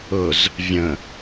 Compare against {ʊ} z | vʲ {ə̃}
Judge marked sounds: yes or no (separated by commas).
yes, yes